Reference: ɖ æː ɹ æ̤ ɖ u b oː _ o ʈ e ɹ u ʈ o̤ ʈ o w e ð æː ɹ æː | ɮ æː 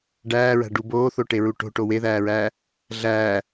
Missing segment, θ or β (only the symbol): θ